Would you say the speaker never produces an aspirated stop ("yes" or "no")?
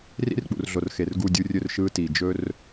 yes